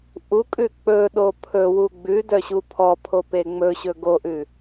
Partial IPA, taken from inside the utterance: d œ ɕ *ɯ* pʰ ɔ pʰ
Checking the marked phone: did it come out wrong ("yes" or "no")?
yes